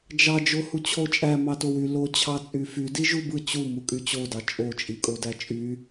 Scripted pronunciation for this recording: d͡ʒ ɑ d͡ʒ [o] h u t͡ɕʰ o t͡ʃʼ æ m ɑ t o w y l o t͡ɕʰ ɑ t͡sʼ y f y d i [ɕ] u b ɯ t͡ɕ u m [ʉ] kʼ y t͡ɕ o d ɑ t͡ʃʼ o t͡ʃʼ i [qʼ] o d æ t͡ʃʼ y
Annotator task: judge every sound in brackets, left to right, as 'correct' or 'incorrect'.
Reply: correct, incorrect: ʒ, incorrect: u, incorrect: kʼ

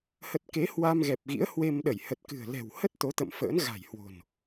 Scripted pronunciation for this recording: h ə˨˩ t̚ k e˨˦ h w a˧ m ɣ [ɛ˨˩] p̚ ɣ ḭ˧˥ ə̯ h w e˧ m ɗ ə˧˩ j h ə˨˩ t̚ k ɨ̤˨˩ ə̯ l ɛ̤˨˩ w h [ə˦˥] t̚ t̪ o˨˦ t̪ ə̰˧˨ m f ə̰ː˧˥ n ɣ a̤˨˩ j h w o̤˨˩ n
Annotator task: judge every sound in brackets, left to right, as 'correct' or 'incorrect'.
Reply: correct, correct

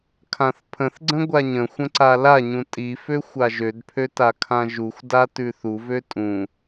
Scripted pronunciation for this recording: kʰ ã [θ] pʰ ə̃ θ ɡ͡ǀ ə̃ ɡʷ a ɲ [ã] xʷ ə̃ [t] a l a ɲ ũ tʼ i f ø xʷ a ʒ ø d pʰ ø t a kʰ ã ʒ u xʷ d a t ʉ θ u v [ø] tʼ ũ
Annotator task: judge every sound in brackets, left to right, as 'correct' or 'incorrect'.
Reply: correct, incorrect: ə̃, incorrect: ǀ, correct

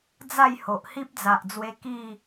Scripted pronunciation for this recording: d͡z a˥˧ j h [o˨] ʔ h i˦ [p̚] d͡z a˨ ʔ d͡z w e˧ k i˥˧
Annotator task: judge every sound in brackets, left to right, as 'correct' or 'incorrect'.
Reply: correct, correct

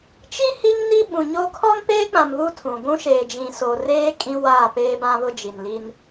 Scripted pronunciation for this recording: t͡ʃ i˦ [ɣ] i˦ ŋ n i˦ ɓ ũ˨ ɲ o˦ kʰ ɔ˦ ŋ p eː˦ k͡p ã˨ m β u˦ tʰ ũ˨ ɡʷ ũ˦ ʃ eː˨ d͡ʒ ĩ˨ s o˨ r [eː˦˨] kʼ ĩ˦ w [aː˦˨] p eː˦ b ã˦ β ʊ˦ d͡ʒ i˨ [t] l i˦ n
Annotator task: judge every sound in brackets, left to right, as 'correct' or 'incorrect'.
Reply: incorrect: h, incorrect: eː˦, correct, incorrect: n

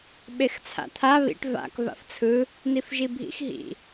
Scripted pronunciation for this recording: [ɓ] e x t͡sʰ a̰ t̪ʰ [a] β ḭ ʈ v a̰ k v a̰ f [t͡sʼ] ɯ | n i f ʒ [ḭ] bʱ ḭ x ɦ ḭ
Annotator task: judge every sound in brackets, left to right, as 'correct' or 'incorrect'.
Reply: correct, correct, incorrect: t͡sʰ, incorrect: i

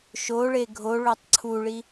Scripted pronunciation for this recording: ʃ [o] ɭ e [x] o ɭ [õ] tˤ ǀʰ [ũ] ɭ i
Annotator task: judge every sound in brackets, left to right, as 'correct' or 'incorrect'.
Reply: correct, incorrect: ɡʱ, incorrect: o, incorrect: u

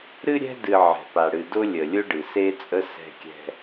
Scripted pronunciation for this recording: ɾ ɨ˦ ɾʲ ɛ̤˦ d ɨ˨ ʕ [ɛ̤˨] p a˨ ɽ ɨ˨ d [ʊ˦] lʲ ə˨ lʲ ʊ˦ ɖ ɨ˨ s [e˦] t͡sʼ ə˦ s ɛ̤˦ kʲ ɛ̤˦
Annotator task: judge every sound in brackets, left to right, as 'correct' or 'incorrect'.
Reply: correct, correct, correct

